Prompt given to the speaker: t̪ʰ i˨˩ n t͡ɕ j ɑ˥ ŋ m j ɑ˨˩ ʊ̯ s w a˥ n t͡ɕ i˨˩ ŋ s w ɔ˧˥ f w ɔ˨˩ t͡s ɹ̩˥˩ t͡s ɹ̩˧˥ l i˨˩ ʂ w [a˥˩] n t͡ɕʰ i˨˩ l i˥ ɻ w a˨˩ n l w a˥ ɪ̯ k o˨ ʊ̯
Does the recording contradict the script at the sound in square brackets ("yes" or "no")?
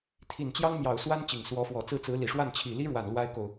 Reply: no